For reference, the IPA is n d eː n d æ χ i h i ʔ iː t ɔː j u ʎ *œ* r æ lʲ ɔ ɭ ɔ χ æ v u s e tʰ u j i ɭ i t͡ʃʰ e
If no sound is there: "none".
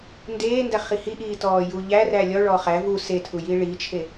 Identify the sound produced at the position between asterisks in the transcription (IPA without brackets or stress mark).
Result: æ